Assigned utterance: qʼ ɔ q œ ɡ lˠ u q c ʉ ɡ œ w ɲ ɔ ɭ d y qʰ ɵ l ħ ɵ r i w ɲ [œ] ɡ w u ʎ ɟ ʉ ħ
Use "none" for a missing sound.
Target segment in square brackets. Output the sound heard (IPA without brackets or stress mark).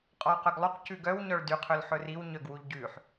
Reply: œ